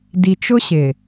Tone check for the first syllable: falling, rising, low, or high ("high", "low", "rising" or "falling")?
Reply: low